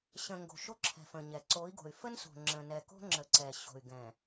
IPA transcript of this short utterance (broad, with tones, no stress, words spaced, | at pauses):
ɕə̃˨ ŋɡo̤˨ʃo˦ǁʰɛ̤˨ fə̃˨ɲɛ˨ ǀo˨˦i̯ɡo̤˨y̯ fə˦n so̤˨ ŋ͡ǁə̃˨nɛ˨ko̤˦ ŋ͡ǁə˨ ǀɛ˨ ɕo̤˨y̯ ɡɛ̃˨